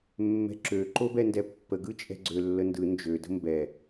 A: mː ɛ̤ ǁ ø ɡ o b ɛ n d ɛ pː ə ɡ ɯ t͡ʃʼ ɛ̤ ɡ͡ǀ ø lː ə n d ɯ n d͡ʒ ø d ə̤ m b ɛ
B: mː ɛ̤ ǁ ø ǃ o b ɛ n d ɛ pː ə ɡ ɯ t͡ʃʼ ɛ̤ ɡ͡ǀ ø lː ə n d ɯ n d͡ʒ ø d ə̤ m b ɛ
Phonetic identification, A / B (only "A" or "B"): B